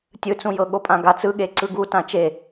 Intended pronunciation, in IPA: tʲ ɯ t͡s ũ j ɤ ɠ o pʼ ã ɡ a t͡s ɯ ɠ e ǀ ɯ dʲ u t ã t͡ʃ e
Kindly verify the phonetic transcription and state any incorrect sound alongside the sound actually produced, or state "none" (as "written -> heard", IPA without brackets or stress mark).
dʲ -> ɡ